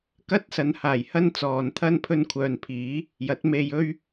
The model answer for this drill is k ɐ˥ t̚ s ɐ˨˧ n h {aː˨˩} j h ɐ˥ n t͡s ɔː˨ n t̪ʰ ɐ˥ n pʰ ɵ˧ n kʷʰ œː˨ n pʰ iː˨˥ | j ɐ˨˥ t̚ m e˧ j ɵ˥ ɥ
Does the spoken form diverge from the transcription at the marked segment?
no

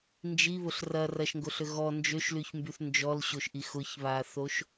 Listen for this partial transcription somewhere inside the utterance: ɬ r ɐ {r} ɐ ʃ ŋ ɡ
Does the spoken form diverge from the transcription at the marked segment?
no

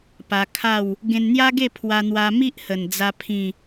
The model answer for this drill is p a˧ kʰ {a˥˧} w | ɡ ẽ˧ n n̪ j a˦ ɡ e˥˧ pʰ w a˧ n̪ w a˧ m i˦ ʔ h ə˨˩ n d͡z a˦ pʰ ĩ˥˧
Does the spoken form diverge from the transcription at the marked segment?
no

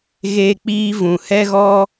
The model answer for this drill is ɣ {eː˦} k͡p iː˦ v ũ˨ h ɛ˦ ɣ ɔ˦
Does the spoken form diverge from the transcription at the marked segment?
no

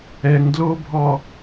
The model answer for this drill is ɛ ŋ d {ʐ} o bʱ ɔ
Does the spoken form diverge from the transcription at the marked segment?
yes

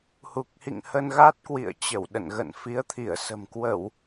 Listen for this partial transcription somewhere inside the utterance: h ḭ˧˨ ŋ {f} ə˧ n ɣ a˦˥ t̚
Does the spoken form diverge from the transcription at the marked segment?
yes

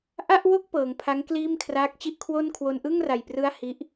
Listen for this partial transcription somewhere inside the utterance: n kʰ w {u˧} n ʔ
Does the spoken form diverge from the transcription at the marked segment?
yes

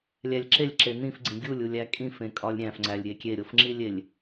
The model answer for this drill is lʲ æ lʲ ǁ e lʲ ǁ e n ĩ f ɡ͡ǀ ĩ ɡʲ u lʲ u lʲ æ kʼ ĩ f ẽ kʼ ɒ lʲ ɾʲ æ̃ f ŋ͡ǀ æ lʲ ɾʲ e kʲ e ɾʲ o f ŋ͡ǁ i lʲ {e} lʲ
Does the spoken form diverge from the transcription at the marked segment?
no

